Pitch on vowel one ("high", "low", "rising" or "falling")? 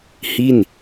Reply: falling